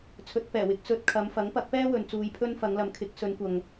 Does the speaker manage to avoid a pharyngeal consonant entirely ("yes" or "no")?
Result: yes